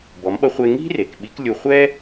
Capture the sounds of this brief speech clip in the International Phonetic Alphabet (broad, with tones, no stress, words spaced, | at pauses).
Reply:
bɔ˩˧mɓʌ˧χʷe˧ ŋi̤˥ re˩k ɓi˧˥klʲu˧ χʷɛ˥